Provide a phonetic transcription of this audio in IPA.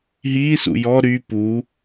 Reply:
ɦ iː s ṵ j ɔ ɾ y p u

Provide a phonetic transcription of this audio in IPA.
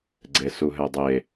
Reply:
ɡ͡ǀ e s u ɦ ɛ dˤ e

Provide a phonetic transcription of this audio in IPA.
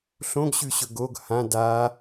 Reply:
ɬ õ ɡ ɕ ʉ ɕ ɵ ɡ o ɡ h ã d a

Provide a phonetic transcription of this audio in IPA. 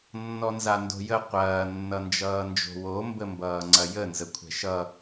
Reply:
nː ɔ n z a n d o̤ j ə qʷ ɐː nː ʌ n d͡ʒ ʌː n d͡ʒ o̤ w o m b ə m b ʌː ŋ͡ǀ ɐ j ə n z ə kʷʰ ɛ̤ ʃ ʌ

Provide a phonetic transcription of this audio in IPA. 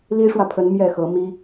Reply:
l i˥ ʂ w ä˨ pʰ ə˧˥ n m j ɛ˥˩ x ɤ˧˥ m i˥

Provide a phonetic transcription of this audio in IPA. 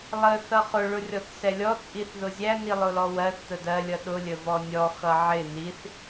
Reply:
lˠ ə θ ʌ χ ʊ ɭ ʊ rʲ ɔ θ s ɛ lʲ ɔ t͡sʼ i θ ð ʊ zʲ æ n i lˠ ʊ l ɔ w ɜ θ t̪ ə d ɜ lʲ ʌ ɗ ʊ lʲ ə v ɔ nʲ ɔ x ʌ ʕ ɪ n i θ

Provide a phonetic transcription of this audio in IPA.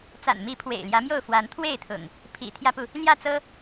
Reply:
t͡s a̰˨˩ n m i˨˦ pʰ w ḛ˨˩ ɪ̯ l j ä˨˦ m j o˥˨ ʊ̯ f w a˨˦ n t̪ʰ w e˥˨ ɪ̯ t̪ʰ ʊ̰˨˩ ŋ | pʰ ḭ˨˩ t̪ʰ j ä˦ p u˨ | l j ä˥˨ t͡s ɤ˦

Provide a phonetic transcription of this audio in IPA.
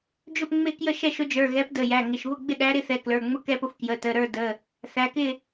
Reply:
d͡ʒ ʊ˥˨ p ŋ͡m ɪ˥˨ k j ə˥˨ ʃ ɛ˥˨ ʃ ʊ˨˥ d͡ʒ ə˞˩˧˩ ɣ ɛ˨˥ p d ə˩˧˩ j æ˩˧˩ ŋ ɪ˩˧˩ ʃ β ʊ˥˨ ɡ͡b ɪ˥˨ ɗ æ˨˥ ɾ ɪ˨˥ θ ɛ˩˧˩ k l ə˞˩˧˩ ŋ͡m ʊ˥˨ k ɛ˥˨ p ʊ˥˨ f k j ə˩˧˩ t ə˩˧˩ ɾ ə˞˥˨ d ə˩˧˩ | θ æ˩˧˩ k ɪ˥˨

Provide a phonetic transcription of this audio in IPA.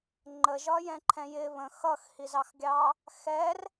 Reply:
ŋ͡ǃ ə ʒ ɒ j ɛ̃ ǃʰ ɛ̃ j ɪ β ə̃ x ʌ x h i z ɑ x ɡʲ ɑ | x ɛ r

